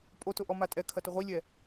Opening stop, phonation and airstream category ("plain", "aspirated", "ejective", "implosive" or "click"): ejective